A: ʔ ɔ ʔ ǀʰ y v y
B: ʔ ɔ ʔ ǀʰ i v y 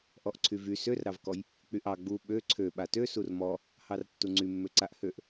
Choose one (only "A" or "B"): A